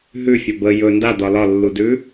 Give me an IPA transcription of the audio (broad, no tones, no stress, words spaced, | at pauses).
ɦʉfʲɒ bə jɵ ndad̪ɒ lɒlːudʉ